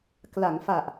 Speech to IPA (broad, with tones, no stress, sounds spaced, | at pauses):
k l a˩˦ ŋ f a˨˩ ʔ